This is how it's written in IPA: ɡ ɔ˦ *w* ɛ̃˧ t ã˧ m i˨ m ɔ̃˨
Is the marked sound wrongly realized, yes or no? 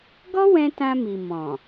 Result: no